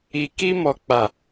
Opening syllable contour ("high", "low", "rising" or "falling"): low